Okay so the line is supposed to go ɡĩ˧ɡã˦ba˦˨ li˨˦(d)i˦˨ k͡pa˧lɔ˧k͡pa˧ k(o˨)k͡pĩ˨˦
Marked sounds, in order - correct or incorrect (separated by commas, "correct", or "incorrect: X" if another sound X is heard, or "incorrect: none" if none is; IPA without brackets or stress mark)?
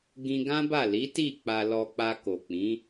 incorrect: t, correct